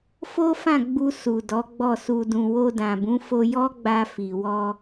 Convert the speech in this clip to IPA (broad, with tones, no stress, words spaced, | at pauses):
fo˦fã˦˨ ɡ͡bu˧ su˨ dɔ˨˦ɡ͡bɔ˦˨su˧dũ˧ wo˧dã˨bũ˨˦fo˧ jɔ˦ɡ͡ba˧fi˨wɔ˧